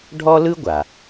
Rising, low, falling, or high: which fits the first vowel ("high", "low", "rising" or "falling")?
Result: high